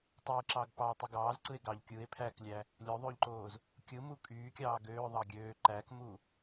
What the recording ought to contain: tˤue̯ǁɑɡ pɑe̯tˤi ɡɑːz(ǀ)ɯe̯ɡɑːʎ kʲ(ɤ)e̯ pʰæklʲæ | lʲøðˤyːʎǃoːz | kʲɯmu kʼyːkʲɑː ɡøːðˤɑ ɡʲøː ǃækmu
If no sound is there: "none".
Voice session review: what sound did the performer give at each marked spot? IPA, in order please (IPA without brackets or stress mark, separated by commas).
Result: ǀ, ɯ